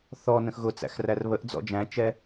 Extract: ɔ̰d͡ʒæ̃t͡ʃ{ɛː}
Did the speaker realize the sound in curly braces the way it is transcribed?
no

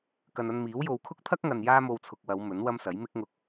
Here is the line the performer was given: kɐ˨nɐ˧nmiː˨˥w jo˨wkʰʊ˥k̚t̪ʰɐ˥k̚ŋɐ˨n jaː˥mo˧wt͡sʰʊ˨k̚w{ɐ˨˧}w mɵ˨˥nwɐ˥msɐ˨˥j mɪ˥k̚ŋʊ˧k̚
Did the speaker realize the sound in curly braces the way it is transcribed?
yes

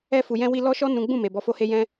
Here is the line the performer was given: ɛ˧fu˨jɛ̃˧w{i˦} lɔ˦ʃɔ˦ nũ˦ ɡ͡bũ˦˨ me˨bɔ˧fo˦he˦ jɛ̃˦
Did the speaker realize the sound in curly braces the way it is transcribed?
no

